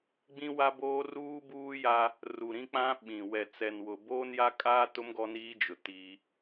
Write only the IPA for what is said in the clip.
ɡ͡bĩ˦wa˦boː˦ ruː˦buː˦ja˦ | ru˨ɾĩ˦k͡pã˦ ɓĩ˨ wɛ˨t͡sɛ˨n wʊ˨ boː˦nja˦kʼaː˦tʊ˦m ɡɔ˦niː˦d͡ʒʊ˨ ti˦

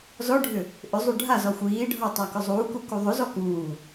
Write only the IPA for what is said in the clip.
zɔɖʱʏ | ʔʏzˤu ɖʱazɔ xʷiː ɖʱɔtˤa kʏzˤuːku kuðˤʏzɔ kuː

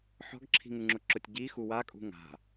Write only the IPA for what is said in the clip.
ħɔ̤ɡǁʰi̤ŋuŋ͡ǁʊ ǁʊtʲɟi xuwakʼṳ ŋa̤

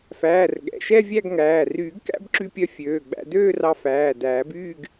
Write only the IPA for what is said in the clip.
fæː˩˧˩r ɠɛ̰˩˧˩ʃɛ˥˧ vʲæ˥˧ɡŋæː˩˧˩ ryː˨˩˦ɡkæ̰˥˧bǁy˧pʲœ˧ fʲøː˩˧˩ɡ͡bæ̰˧ døː˥˧rɑ˧fæː˩˧˩ dæː˨˩˦byː˥˧ɡ

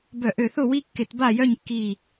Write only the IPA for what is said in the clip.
bœ˧˩˧ʔø˧˩θʊ˥˨wi˦ kːɪ˧˩˧tba˥˨jœ˥˨ɲkːi˧˩

